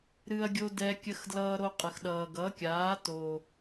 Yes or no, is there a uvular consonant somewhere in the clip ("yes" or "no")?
yes